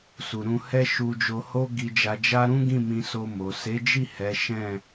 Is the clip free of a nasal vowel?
no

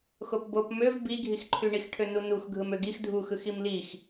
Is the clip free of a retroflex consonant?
no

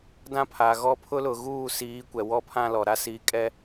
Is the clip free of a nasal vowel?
no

